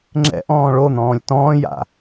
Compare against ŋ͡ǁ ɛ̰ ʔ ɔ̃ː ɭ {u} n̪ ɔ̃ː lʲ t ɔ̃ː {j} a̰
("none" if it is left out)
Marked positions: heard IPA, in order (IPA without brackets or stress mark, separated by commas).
o, j